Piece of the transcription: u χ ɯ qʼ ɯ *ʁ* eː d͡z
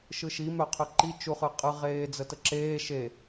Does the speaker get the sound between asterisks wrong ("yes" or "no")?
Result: no